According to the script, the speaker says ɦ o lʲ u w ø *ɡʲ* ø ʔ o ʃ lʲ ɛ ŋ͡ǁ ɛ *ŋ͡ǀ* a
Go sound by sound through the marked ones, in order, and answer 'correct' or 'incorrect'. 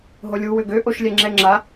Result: incorrect: ɡ, incorrect: ŋ͡ǁ

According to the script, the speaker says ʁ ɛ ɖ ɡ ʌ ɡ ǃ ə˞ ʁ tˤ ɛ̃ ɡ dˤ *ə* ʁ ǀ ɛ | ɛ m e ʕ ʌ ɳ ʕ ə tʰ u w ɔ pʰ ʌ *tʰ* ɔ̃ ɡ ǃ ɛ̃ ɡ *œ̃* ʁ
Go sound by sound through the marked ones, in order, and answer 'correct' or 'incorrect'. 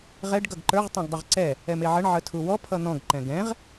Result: correct, incorrect: n̪, incorrect: ɛ̃

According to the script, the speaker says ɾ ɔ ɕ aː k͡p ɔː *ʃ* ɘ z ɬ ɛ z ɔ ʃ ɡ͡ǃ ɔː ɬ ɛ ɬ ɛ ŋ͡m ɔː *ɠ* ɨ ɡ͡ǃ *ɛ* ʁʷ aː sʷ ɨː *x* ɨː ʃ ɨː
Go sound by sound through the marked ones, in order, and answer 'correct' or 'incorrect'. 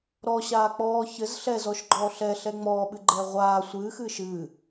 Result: incorrect: ç, incorrect: ɓ, incorrect: ɛː, correct

